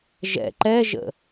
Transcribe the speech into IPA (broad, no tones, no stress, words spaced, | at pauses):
ʒɛ̰ ǃɛʒə̰